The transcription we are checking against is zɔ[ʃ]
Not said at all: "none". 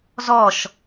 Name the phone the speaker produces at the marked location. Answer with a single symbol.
ʃ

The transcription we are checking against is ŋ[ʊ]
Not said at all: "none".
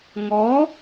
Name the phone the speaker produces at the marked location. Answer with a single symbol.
ɔ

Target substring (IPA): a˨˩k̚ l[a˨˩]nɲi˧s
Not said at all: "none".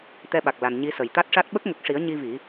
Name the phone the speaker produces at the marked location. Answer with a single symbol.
a˨˩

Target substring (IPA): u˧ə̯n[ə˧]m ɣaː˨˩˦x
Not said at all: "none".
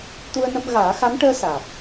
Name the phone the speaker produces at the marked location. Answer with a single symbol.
ə˧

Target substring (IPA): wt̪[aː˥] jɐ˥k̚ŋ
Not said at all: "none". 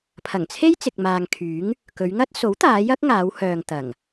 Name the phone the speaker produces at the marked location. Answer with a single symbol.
aː˨˧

